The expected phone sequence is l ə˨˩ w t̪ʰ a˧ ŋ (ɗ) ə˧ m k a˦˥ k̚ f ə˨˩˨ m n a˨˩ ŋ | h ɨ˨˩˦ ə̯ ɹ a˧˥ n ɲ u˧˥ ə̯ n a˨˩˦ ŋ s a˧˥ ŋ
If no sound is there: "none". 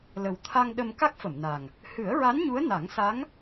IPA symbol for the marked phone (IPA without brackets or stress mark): ɗ